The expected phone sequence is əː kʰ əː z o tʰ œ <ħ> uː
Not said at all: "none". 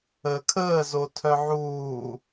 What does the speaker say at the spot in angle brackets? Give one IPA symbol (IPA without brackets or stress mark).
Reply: ʕ